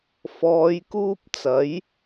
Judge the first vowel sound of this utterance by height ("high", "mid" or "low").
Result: mid